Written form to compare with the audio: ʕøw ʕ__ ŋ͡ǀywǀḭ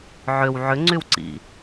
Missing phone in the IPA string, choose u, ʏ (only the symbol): ʏ